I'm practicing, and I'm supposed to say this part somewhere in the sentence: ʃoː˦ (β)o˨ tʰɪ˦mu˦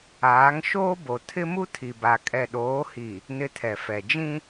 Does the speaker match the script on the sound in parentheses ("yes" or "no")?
no